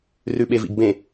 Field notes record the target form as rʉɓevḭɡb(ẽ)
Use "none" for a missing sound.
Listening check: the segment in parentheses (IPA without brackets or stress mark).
ẽ